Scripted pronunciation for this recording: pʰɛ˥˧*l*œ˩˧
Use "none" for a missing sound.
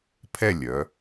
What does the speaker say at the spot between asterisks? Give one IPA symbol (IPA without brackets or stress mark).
lʲ